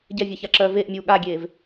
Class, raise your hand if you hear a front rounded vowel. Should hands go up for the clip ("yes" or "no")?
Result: yes